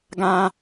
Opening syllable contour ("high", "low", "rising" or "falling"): high